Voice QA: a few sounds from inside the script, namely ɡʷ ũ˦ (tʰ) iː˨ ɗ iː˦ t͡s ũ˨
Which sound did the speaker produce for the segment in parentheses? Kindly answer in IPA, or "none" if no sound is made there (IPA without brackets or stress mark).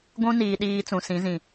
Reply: n